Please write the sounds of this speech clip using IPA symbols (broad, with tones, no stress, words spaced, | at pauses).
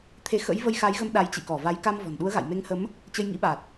t̪ʰe˨˦xə̰˧˥jvə˧j xa˨˦jɣə˨˦m ɗa˨˦jt͡ɕḭ˧˨kɔ˧˩va˨˦j ka˧mvɔ̤˨˩nɗu˨˦ə̯ɣa̰˧˨j me˨˦ŋhə˨˦m | t͡ɕə˧jŋḭ˧˥ɓa˨˩t̚